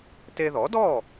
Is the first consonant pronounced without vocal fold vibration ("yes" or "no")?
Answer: yes